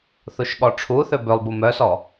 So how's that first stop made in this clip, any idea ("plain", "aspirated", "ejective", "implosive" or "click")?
implosive